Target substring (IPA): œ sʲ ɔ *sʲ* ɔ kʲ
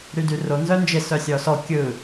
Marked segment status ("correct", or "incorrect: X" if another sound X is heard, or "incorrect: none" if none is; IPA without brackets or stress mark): incorrect: s